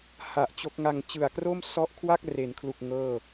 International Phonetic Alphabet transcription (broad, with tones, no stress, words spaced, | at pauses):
ha˨˩ʔ t͡ɕo˦˥k̚ŋa˧ŋ t͡ɕɯ˨˩a̯kro˥˩m sɔ˦˥ʔkʰwa˥˩k̚re˩˦nkʰlu˨˩k̚ ŋɤː˥˩